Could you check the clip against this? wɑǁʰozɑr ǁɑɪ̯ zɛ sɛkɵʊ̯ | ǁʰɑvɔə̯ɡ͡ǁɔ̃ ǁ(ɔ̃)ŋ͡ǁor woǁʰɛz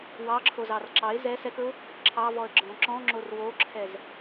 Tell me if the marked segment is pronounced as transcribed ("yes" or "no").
yes